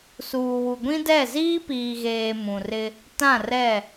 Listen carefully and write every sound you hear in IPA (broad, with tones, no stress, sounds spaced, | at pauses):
s uː˨ w u˨ ɡʷ ĩ˦ d ɛ˦˨ z iː˦ p iː˨ ɣ eː˨ m ũ˨ r ɪ˦ | t ã˦˨ r ɛ˦˨